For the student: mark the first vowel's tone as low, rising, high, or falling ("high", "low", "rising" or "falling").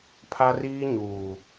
high